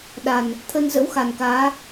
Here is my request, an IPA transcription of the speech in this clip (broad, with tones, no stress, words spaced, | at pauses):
ɗa˨˩n | t̪ʰə˧nzə̰˧˥wxa˨˩nkaː˨˦